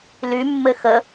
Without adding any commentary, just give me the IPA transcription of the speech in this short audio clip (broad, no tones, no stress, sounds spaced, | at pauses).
l y mː ɘ x ə